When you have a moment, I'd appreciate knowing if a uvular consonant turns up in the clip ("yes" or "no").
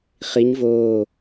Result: yes